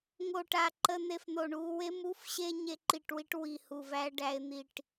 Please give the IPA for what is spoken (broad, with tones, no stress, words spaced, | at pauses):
ŋo˧˩ʈa˧˩ ǃə˧n̪e˧fn̪o˧˩ɳu˧ we˧mu˧fɕe˧ ɲe˧ǃi˧˩ʈ wi˧ʈwi˧˩hu˧˩væ˧ ɖæ˧ɪ̯n̪i˧˩ʈ